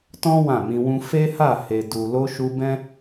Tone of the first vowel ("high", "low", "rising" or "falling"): high